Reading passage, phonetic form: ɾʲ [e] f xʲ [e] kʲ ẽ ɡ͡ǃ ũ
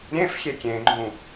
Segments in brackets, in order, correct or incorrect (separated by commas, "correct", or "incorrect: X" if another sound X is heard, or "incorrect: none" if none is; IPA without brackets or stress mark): incorrect: ẽ, correct